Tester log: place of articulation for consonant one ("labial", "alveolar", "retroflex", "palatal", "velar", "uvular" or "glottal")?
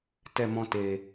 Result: alveolar